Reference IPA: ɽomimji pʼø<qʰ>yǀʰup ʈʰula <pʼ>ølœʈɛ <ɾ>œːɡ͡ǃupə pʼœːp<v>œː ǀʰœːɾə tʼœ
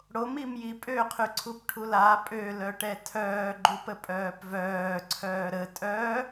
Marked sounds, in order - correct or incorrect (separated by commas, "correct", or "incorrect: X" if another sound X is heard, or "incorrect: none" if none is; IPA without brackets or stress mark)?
correct, correct, incorrect: tʰ, correct